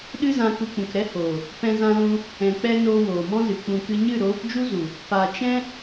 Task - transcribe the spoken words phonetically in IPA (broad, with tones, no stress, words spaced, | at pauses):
ɗɨ˦zã˧ ku˧k͡pũ˨kɾɛ˦hoː˨ | pɛ̃˦zã˦lũ˦ | ɛ̃˨k͡pɛ˧ noː˧woː˨mɔ̃˦zɨ˨ k͡pũ˨kɨ˧ɲɨ˦˨ ɾoː˨˦pd͡ʒu˦zu˨ | pa˨ t͡ʃɛ̃˦